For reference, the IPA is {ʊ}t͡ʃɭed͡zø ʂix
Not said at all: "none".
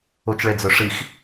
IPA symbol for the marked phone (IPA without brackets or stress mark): ʊ